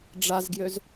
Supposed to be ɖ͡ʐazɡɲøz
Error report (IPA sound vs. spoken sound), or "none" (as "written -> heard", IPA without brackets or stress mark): ɲ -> j